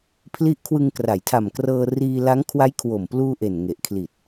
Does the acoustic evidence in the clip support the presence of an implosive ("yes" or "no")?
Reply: no